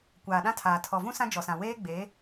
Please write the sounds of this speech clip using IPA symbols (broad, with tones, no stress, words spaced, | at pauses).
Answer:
kʷaː˨ɗã˦tʰaː˨ tʰɔ˨vũ˦ sã˦d͡ʒɔ˨sã˨ weː˦ɡ͡beː˨˦